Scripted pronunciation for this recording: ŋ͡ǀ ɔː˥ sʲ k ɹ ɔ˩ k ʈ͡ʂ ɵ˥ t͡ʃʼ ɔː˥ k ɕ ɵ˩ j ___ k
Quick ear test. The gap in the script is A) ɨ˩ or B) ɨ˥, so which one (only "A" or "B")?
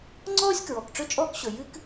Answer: B